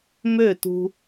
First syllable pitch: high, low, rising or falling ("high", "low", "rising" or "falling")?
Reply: falling